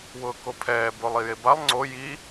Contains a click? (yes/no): yes